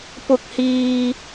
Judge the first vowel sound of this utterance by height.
high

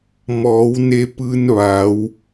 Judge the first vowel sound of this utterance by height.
mid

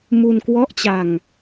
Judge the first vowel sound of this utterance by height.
high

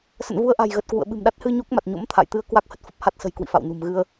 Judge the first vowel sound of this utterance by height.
mid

